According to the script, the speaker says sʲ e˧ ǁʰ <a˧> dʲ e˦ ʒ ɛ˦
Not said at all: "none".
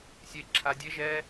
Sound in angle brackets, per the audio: a˧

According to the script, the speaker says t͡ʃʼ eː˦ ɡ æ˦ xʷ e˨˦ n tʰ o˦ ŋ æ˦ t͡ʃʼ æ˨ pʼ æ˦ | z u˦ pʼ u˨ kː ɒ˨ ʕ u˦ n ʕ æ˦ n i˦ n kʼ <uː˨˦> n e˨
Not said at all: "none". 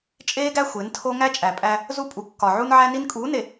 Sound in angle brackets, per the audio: uː˨˦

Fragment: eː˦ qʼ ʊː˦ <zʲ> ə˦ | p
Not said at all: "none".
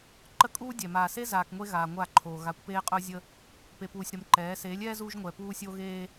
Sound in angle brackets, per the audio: zʲ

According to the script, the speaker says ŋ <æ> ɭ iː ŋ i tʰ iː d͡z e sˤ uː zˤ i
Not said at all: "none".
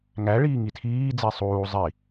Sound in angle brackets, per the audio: æ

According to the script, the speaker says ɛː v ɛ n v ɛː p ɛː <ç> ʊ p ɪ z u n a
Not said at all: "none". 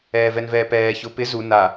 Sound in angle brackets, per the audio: ç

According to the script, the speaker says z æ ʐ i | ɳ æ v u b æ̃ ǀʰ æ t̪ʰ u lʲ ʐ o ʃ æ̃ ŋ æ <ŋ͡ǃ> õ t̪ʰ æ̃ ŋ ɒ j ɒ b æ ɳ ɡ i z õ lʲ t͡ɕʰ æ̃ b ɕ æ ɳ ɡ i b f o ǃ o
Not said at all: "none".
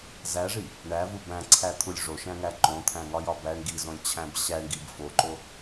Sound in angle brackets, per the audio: ǃ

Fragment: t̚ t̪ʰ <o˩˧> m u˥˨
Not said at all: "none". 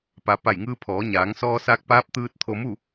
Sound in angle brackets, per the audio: o˧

